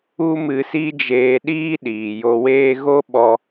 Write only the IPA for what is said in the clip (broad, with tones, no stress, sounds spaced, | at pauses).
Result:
u˦ m ɨ˧ s i˦ d͡ʒ eː˧ ɗ iː˦ ɗ iː˨ j o˧ w eː˦ ɣ o˦ ɓ ɔ˧